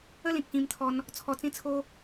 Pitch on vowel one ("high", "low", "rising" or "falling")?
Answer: falling